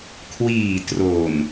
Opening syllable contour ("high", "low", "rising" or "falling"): low